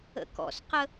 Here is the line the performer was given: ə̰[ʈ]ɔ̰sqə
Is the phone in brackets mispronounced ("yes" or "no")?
yes